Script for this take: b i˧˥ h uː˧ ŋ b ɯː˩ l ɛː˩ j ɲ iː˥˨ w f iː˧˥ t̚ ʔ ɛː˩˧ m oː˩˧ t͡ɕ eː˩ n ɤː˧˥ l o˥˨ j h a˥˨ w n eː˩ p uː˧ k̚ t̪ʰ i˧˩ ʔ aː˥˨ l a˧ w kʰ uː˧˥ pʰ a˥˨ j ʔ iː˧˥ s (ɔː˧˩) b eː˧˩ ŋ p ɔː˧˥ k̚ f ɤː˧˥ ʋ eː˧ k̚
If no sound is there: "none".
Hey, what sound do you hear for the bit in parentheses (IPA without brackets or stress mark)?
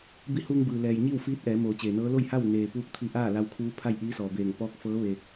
ɔː˩